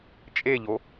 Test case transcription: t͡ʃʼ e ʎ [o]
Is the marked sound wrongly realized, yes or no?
no